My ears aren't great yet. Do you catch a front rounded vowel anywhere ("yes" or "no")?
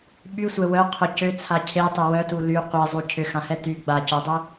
yes